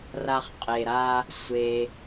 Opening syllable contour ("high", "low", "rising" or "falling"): low